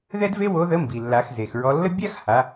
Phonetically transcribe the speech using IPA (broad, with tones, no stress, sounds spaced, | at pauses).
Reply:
ð ɛ˥ d v e˥ w o˧˥ ð ə˧˥ m b i˩ lː a˩˧ x z e˩ x ɹ ɔ˧ lː ə˥ bʲ a˥ x h a˩˧